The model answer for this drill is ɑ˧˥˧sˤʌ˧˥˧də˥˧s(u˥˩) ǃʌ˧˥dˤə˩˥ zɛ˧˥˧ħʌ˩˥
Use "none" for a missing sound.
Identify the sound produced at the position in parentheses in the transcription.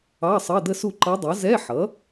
u˥˩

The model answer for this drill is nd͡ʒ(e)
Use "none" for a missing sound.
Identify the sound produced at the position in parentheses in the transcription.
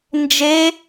e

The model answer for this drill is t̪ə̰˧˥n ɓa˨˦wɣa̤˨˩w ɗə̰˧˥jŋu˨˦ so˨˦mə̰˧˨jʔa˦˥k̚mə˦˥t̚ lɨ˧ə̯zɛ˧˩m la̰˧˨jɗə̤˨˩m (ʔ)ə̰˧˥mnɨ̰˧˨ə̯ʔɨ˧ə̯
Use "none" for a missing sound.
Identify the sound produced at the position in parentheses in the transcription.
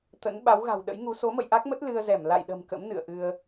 k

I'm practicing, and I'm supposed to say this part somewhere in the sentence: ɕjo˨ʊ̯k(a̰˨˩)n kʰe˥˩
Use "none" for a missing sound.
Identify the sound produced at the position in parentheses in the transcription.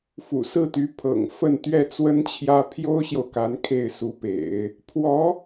a˧˥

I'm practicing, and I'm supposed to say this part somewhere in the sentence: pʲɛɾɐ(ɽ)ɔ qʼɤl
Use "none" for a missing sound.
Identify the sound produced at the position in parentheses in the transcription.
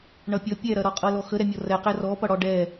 ɾ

